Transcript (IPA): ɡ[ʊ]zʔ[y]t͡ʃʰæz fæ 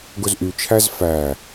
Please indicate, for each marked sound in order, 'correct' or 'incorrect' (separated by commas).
correct, correct